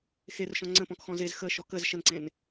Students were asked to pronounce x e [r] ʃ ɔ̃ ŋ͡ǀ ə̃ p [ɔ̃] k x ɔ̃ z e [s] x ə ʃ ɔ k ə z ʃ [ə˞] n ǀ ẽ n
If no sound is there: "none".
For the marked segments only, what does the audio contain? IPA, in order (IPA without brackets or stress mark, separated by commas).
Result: r, ɔ̃, z, ə